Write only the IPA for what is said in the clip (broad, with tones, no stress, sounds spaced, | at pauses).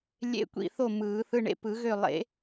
lʲ ḛ˧˥˧ kʷ ḭ˥˨ θ o˥˨ m ɯː˨˩˦ θ ɯ˧˥˧ ɳ ḛ˥˨ p ɯ˨˩˦ ɣ ø˥˨ lˠ ḛ˨˩˦